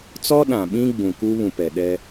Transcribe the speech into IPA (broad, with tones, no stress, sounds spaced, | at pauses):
t͡s ɔ˦ ɗ ã˨ ɓ ĩ˦ ɡ͡b ũ˨ k u˦ β ũ˨ p ɛ˨ ɗ ɛ˦